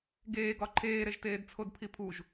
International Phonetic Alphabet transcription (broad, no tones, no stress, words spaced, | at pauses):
ɡeːɡɒ ǃʰeːɾeʒteːd t͡sʰodpʰipʰuʒ